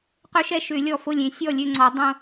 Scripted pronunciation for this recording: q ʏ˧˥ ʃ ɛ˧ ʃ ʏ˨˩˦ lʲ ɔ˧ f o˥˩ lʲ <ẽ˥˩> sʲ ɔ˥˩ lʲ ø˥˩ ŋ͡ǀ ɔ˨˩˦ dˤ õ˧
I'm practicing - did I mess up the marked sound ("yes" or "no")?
yes